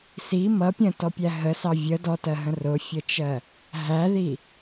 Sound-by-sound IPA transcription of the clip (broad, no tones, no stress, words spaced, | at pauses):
si mʌ pʲə̃tɔpʲæ ɦəsɑ vʲə dɔtɜɦə̃ rʊfʲət͡ʃɜ | ɦæði